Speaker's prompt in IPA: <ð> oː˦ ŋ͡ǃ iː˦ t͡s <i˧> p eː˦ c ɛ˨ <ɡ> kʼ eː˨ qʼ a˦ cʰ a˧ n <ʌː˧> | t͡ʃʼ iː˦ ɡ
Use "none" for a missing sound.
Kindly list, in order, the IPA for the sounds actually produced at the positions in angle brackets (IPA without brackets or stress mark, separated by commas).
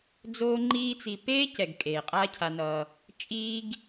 d͡z, i˧, ɡ, ʌː˧